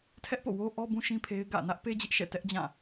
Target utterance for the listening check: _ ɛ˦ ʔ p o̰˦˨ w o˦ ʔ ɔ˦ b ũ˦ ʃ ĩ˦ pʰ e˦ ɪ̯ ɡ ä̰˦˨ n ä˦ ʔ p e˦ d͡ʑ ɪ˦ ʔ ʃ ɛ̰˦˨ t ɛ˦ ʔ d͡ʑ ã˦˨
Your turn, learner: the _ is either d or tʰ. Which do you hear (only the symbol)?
tʰ